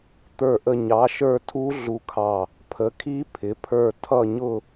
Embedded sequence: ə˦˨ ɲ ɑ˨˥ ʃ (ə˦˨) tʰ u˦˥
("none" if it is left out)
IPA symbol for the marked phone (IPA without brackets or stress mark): ə˞˦˨